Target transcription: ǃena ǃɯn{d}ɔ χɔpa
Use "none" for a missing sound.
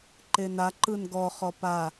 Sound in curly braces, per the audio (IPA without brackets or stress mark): ɡ